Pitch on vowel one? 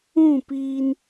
falling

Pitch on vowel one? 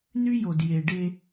high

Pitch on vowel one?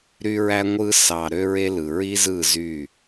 high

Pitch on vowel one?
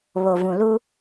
low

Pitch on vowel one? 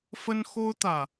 high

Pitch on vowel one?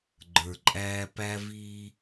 low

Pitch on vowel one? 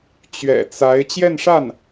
low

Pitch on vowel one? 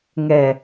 low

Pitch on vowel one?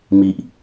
low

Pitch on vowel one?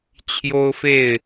high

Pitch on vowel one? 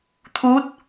rising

